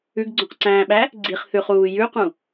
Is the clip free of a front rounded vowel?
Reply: yes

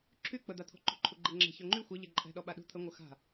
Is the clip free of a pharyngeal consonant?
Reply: yes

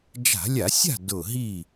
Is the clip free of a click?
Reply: yes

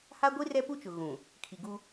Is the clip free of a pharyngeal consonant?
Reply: yes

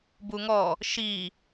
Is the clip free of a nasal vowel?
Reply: yes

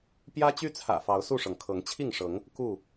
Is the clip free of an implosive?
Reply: yes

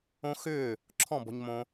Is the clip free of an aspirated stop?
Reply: no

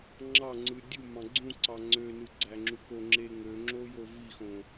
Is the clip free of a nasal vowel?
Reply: no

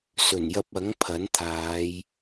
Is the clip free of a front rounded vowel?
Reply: yes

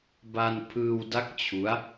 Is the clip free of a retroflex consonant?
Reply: yes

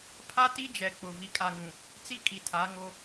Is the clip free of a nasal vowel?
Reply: no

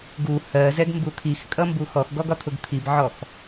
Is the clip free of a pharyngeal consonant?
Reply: no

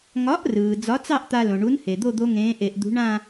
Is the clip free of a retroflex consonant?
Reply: no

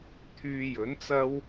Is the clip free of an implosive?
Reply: yes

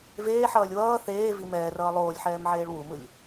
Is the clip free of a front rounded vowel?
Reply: yes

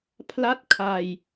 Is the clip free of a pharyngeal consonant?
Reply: yes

